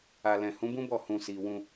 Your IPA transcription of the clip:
a˨ l ɛ̃˨ h ũ˨˦ b ũ˦ b ɔ˦˨ h ũ˨ s i˨ w ũ˧

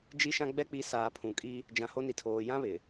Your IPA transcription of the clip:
d͡ʒ i˦ ʃ ã˦ ɡ͡b ɛ˦ k͡p i˨˦ s aː˨ pʰ ũ˨ kʼ i˦ | d͡ʒ ã˨ h o˦ n i˨ tʰ oː˨ j ã˦ β ɪ˨

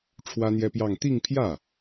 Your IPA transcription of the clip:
ʈ͡ʂʰ w ä˥ n̪ j ɛ˥ p j ɑ˥˧ ŋ t̪ i˥˧ ŋ pʰ j ä˥˩

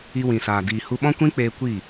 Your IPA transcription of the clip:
i˧ w ĩ˨ s aː˨ d iː˨ h u˧ ɓ ɔ̃˦ kʷ ĩ˦ k͡p eː˧ kʷ i˦˨

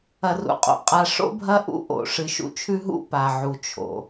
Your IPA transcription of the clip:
ɐ˨ r ṵ˨ qʼ o̰˨ qʼ a˨ ʂ o̰˦ bʱ ɐ˦ ʔ ṵ˦ ʔ o̰˨ ʂ ɨ˨ ʃ ṵ˦ t͡ʃʰ ʉ˦ ɦ ṵ˦ p a˨ ʕ u˨ t͡ʃʰ o̰˨

